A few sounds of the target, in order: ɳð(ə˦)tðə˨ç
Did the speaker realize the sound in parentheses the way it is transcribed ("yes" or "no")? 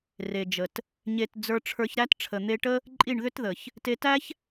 no